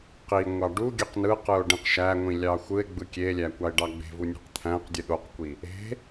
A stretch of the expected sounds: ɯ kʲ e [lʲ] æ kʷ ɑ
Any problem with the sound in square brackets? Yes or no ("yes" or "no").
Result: no